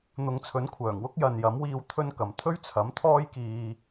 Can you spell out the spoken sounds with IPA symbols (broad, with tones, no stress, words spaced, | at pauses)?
n̪ʊ˨ŋt͡sʰɵ˨˥nkʷʰœː˨˩ŋwʊ˥k̚ jɐ˨njɐ˨˥mwiː˧w t̪ʰɵ˥nkɐ˨m t̪ʰɵ˥ɥt͡sʰɐ˨˥mt̪ʰɔː˥jkiː˧